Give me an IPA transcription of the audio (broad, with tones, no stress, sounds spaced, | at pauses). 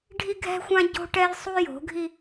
ɖʱ i˦ ɡʱ ɛ̤˦ xʷ ã˦ ɟ o̤˦ ʈ ɛ˦ j sˤ u˦ j o̤˨˦ ɡʱ i˦